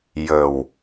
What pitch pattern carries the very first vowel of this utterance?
low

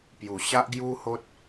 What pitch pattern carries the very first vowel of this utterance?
low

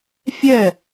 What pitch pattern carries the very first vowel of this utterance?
falling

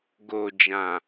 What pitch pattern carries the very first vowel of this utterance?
low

